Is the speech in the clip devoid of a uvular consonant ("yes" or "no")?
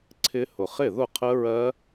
no